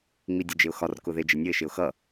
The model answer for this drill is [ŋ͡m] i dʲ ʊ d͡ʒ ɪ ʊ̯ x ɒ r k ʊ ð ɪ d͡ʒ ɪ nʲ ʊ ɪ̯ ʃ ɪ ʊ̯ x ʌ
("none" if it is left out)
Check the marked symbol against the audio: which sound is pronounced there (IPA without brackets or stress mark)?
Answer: ŋ͡m